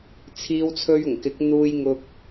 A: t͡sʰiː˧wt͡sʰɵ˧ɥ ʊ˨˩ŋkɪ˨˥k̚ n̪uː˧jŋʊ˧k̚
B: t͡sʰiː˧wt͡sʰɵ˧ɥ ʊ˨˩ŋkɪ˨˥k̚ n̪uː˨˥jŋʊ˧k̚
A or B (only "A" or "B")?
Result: A